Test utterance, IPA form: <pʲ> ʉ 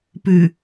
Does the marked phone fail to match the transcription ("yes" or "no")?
yes